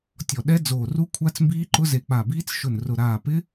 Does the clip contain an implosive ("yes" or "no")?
yes